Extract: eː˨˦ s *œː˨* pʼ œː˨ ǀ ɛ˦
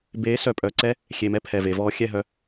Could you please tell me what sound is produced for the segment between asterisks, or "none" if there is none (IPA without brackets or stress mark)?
œ˨